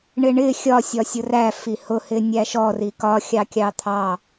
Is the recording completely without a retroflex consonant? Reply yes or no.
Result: no